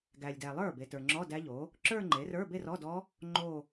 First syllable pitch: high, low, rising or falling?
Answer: low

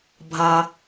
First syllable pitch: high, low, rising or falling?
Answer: low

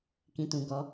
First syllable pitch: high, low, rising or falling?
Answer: low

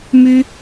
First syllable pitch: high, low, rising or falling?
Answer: high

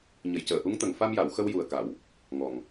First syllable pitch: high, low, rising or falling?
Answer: low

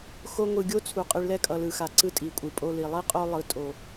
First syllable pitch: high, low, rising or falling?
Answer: high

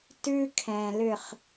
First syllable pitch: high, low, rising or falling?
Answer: high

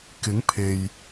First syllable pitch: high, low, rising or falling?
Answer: rising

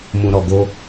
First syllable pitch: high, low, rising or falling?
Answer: low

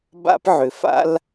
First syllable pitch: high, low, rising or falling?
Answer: high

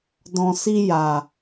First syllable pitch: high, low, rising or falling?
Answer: low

